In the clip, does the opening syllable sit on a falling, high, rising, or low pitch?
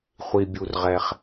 high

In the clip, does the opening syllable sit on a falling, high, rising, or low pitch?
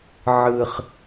low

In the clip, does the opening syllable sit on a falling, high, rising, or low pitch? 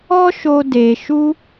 high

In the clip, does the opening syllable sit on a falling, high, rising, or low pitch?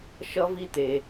high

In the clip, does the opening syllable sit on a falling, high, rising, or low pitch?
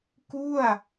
falling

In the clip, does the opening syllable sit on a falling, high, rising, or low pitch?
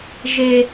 high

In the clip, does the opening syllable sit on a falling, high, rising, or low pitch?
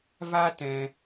high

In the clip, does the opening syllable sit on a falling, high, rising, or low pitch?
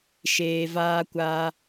low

